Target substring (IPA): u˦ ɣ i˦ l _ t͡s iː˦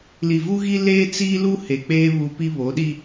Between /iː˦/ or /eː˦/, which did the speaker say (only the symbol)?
eː˦